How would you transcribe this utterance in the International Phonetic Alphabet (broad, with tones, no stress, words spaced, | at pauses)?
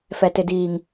fɛ˨tɪ˨diː˨ŋ